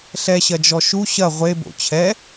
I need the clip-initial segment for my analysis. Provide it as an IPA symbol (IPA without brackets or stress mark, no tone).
ɬ